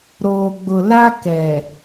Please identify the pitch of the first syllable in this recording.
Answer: low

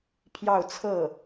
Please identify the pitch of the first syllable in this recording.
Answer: falling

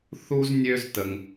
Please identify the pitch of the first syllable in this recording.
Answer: high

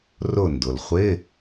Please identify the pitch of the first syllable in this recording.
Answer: falling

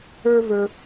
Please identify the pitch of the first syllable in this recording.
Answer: high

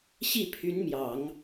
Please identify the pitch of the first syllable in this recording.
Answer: falling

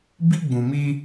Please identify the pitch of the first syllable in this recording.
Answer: high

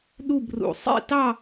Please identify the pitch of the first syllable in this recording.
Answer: falling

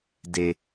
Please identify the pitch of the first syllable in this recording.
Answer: low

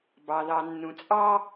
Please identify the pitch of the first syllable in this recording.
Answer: low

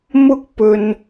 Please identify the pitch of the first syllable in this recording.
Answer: high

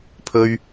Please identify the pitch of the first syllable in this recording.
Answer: low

